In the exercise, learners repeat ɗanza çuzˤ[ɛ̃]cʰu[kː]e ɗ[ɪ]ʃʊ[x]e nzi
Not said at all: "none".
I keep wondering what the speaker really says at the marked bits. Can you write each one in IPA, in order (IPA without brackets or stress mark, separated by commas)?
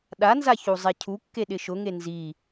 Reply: ɛ, kː, ɪ, ŋ